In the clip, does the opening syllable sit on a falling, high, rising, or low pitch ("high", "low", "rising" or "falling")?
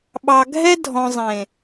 low